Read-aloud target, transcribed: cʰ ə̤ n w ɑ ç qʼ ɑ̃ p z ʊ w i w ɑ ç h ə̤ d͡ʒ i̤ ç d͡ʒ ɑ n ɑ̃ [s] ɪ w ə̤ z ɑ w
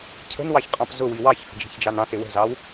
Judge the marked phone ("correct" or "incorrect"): correct